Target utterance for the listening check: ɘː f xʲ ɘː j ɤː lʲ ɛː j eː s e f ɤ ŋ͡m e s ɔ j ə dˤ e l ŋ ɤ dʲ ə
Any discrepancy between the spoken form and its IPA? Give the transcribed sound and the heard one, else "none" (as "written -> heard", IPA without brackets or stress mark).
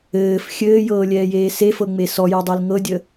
none